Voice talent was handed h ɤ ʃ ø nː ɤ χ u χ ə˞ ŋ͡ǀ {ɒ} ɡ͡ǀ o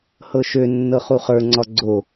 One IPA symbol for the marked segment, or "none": ɒ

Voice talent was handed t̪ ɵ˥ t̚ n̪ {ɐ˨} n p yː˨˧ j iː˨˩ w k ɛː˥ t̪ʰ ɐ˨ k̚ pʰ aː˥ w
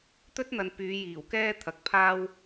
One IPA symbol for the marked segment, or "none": ɐ˨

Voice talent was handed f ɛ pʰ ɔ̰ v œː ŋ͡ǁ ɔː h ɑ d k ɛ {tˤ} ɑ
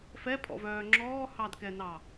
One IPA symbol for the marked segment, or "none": n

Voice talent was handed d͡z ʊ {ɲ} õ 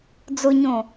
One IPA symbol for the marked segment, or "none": ɲ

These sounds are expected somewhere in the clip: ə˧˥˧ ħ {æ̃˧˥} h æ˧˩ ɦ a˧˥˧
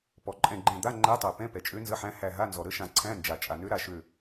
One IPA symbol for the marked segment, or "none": æ̃˧˥˧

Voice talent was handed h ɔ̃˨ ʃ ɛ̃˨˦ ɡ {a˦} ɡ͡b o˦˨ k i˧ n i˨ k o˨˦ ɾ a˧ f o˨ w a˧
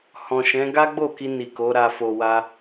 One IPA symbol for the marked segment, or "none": a˦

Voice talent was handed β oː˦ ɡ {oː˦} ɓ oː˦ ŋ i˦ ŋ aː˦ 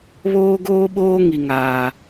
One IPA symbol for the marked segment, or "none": oː˦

